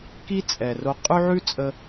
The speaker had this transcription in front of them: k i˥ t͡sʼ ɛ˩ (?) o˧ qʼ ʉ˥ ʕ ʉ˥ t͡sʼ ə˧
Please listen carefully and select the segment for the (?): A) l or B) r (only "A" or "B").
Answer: B